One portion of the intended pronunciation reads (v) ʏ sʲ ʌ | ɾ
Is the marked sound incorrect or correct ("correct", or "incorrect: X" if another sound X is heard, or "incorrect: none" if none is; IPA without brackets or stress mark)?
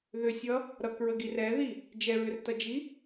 incorrect: ð